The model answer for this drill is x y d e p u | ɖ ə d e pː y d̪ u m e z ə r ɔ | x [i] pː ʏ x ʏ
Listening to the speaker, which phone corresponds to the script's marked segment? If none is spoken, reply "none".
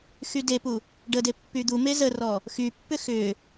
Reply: y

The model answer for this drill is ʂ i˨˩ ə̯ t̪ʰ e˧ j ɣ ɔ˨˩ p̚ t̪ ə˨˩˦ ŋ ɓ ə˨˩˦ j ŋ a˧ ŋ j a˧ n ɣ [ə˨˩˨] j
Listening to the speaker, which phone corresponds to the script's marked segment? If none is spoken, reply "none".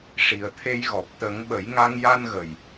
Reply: ə˨˩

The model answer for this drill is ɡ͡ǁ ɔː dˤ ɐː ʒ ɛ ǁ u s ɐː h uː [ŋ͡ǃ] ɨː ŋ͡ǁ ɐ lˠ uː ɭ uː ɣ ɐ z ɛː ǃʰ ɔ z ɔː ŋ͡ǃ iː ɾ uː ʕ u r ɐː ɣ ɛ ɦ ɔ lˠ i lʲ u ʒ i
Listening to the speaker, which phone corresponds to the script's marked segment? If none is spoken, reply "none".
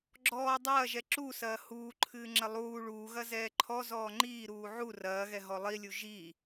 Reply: ǃʰ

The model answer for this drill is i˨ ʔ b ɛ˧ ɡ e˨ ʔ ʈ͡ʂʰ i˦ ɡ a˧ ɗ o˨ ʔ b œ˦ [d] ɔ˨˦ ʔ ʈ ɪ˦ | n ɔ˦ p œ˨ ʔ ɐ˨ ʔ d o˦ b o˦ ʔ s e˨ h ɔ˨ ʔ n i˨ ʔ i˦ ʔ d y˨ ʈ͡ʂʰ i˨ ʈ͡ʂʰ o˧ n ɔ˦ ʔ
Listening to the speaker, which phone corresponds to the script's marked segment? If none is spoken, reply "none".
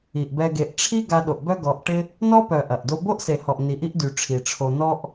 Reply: ɡ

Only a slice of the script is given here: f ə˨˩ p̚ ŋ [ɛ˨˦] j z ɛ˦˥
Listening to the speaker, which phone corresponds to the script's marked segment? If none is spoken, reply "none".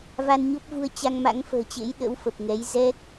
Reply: ɛ˨˦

